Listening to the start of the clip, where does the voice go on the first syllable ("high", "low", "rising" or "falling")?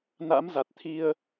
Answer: rising